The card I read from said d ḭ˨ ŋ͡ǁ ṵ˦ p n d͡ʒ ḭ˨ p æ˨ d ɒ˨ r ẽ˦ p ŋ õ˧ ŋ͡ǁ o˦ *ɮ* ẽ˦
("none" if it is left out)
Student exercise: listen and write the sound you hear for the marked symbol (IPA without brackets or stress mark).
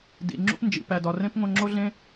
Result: ɮ